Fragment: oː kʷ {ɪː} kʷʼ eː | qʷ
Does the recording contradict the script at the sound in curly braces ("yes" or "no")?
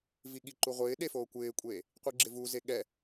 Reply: no